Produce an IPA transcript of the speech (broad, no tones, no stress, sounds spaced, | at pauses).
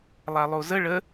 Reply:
lˠ a lˠ o z ə ɭ ə